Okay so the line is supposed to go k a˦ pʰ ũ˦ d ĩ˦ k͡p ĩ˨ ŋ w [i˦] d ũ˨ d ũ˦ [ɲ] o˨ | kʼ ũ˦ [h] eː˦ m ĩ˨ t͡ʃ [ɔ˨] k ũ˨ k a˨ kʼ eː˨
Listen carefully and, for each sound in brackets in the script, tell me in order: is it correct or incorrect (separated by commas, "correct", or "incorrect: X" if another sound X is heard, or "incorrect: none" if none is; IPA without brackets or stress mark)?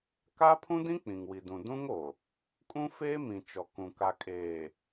incorrect: i˨, incorrect: ŋ, incorrect: f, correct